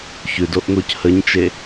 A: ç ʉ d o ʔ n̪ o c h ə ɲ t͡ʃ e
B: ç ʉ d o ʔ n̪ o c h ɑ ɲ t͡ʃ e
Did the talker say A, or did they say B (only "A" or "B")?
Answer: A